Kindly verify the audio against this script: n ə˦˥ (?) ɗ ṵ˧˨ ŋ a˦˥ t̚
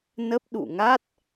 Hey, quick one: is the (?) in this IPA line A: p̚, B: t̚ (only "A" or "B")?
A